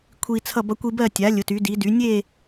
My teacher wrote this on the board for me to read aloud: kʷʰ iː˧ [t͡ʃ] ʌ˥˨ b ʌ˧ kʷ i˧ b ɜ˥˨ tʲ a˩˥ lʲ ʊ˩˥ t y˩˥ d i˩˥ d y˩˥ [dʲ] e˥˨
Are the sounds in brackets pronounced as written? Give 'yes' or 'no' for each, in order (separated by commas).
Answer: no, no